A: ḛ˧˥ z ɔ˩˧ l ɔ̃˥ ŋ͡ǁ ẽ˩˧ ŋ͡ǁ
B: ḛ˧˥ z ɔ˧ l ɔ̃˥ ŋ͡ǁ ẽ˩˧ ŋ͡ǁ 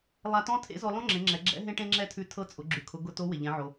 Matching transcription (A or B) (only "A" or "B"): B